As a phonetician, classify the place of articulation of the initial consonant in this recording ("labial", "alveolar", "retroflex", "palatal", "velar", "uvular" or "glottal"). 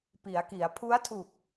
labial